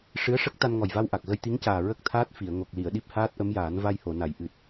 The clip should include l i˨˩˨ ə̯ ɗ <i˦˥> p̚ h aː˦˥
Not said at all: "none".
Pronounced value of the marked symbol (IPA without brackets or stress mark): i˦˥